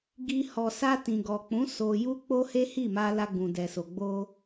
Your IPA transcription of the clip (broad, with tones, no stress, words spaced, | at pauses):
ɡi˧ hɔ˨sa˧ tĩ˨ɡɔ˨k͡pũ˨˦ so˧ ju˦k͡po˦he˦ hi˦˨ma˧ la˧ɡũ˨dɛ˨so˨ ɡ͡bo˧